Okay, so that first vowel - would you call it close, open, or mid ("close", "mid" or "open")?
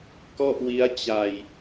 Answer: mid